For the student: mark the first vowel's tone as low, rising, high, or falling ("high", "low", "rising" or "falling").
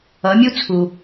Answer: rising